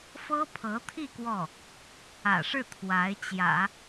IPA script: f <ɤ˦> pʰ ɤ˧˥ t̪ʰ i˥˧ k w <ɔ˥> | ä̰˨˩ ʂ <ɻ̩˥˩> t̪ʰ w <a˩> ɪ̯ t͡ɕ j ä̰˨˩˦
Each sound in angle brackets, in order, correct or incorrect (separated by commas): incorrect, incorrect, correct, incorrect